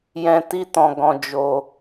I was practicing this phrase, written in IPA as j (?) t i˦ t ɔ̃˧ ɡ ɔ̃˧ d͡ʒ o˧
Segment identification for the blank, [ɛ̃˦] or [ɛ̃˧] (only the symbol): ɛ̃˧